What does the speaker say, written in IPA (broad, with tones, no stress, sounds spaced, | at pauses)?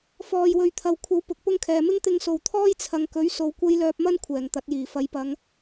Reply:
f ɔː˨ j w ɵ˨ ɥ t̪ʰ ɐ˨ w kʷʰ ɐ˨˥ w p ʊ˨˥ k̚ p ʊ˥ ŋ kʰ ɛː˨ m ɪ˥ ŋ t̪ ɪ˧ ŋ s o˨ w t̪ʰ ɔː˥ j t͡sʰ ɐ˨ ŋ k ɵ˨˥ ɥ s o˨ w kʷ ɐ˥ j l œː˧ p̚ m ɐ˥ n kʷʰ ɛː˨˩ ŋ t̪ ɐ˨˥ t̚ j iː˨˩ f ɐ˨˧ j p ɐ˨˧ ŋ